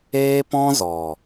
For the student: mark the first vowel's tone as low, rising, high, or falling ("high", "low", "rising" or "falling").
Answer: high